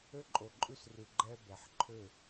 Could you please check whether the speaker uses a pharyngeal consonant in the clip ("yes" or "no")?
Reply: yes